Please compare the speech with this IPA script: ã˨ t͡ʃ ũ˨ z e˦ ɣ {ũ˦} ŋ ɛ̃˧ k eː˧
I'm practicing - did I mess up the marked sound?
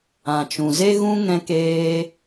no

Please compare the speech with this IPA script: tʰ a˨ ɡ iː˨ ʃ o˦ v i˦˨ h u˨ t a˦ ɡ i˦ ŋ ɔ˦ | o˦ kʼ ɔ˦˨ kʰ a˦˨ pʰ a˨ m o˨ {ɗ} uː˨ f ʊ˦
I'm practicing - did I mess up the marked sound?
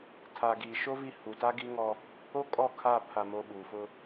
yes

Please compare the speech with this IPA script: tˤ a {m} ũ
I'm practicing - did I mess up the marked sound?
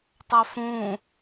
yes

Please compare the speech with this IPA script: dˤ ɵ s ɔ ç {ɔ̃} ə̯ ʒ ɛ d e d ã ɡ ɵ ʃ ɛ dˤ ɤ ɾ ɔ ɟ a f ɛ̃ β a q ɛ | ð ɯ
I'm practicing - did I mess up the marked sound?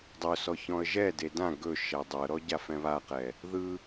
no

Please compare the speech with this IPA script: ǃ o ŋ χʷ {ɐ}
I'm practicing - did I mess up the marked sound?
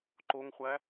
yes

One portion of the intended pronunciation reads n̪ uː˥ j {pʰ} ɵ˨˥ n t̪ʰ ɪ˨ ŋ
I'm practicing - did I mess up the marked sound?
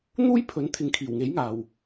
no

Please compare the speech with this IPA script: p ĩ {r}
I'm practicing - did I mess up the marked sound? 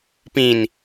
yes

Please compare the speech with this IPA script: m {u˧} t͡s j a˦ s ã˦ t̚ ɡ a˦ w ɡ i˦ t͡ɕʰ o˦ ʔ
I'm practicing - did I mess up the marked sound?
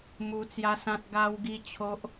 no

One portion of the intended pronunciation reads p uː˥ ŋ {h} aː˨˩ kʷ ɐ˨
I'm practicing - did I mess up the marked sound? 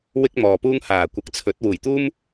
no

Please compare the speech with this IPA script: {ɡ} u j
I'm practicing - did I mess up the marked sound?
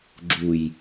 yes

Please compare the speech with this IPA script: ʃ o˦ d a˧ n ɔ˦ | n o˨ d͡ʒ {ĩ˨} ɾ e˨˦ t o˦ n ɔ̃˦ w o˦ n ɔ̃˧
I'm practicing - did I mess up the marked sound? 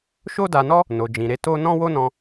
no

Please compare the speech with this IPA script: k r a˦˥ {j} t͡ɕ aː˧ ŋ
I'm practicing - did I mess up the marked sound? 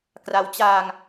yes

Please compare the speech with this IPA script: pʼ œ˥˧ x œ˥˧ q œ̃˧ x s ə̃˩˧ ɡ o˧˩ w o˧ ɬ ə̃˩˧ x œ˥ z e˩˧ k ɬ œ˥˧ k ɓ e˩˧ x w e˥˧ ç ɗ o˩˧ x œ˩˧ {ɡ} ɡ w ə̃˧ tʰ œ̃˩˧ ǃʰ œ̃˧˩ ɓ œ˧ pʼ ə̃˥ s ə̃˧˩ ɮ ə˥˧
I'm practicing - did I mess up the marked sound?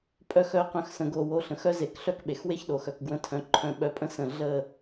yes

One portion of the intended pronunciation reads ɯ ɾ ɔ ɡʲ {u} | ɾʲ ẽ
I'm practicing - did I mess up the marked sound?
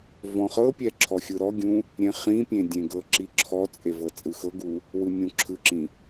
yes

